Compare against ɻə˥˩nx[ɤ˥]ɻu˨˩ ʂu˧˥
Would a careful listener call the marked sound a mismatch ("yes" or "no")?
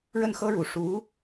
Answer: no